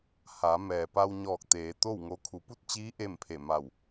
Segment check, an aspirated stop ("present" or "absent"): present